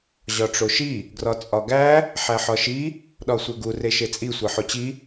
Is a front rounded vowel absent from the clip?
yes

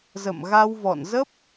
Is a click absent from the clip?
yes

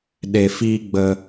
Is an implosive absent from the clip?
no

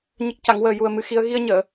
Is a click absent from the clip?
yes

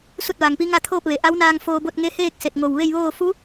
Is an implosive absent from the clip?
yes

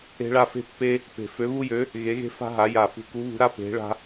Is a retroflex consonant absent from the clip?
no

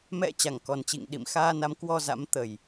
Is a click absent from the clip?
yes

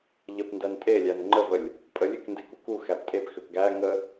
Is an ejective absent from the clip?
no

